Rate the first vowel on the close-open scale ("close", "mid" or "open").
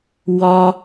open